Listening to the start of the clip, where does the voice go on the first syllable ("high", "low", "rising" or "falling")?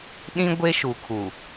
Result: high